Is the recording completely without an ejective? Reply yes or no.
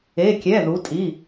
no